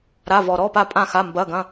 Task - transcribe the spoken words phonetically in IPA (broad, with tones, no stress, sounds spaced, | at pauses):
ɾ a˧˥˧ v ɔ˧ ɾ ɔ˧˥˧ p a˥˧ pʼ ã˥˧ x a˧˥˧ m b ɐ˧˥˧ ɡ ɐ̃˧˥˧